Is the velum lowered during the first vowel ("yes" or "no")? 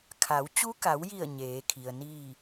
no